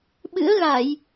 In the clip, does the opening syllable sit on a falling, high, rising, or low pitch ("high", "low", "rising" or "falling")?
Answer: rising